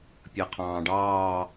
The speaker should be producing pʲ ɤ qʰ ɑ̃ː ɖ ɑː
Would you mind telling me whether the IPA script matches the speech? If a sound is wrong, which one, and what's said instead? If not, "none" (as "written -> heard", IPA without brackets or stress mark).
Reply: none